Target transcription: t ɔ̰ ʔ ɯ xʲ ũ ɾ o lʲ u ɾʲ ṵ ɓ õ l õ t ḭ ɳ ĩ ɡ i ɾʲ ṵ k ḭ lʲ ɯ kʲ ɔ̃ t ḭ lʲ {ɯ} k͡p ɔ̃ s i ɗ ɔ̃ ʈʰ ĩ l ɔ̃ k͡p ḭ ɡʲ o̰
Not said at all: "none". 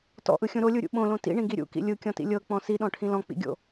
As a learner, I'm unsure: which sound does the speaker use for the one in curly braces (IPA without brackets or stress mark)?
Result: ɤ